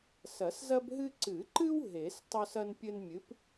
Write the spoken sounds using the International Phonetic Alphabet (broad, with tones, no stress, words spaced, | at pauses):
sɐ˨˩˦szɐ˦bɦɨ˦ ǀɨ˨˩˦ǃɨ˦w ɦe˨˩˦s tˤo˦sɐ˦npʲɘ˦nmʲɨ˨˥p